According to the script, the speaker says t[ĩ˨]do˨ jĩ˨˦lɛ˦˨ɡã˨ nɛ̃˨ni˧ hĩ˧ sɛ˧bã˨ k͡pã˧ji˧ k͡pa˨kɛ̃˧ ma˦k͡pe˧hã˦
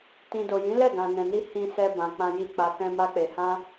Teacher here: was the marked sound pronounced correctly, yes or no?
yes